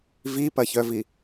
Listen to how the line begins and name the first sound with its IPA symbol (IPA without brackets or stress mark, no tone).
v